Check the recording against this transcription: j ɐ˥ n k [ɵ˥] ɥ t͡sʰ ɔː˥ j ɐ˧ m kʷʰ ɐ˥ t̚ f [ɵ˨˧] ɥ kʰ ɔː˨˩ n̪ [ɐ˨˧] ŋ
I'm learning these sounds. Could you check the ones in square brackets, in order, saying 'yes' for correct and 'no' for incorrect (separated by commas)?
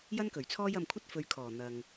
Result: no, yes, no